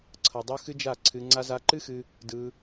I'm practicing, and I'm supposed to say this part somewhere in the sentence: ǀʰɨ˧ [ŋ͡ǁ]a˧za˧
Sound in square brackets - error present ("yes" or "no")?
yes